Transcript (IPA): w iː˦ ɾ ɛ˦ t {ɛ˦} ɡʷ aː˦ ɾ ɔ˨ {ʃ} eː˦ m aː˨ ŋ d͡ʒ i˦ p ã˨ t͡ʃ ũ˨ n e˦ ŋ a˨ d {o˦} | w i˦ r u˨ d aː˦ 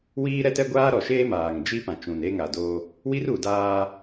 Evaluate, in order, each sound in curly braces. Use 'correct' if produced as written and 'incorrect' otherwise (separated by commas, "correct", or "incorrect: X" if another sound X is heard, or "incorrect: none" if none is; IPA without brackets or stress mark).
correct, correct, correct